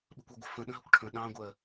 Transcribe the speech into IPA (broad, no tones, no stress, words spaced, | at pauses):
ɓə̤kʷɑɡʷə̤ fə̃ ɗə̃ɦəkʷʈʰə̃ ɗɑ̃ɡʷɜ